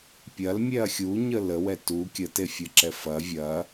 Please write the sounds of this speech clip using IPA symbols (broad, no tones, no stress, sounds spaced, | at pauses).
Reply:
pʲ ɐ l mʲ ɛ ɐ̯ xʲ u ɲ ə l ə w ɛ t u kʲ ə t e fʲ ə ǁ ɛ f ɐ vʲ ɐ